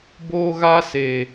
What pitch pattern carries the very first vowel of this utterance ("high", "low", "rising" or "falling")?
high